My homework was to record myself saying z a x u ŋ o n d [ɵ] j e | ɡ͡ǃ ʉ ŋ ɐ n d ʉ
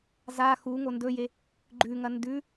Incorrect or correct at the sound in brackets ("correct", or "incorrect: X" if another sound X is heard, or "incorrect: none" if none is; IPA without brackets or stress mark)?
correct